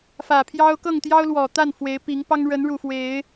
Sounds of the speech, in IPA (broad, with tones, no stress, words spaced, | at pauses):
fä˨˩pʰjɑ˦ʊ̯ kɤ˥˨ŋt̪jɑ˦ʊ̯ lwɔ˨˩t̪a˥˨n fwe˨˦ɪ̯pi˨˦ŋpɑ˦ŋ ɻə˨˦nɻu˨˩ fwe˨˦ɪ̯